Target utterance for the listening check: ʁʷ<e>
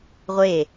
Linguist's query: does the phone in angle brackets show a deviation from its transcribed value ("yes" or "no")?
no